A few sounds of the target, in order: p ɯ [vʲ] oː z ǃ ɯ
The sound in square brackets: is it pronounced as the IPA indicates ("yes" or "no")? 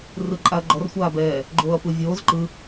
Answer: yes